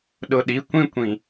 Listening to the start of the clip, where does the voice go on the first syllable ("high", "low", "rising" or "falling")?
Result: low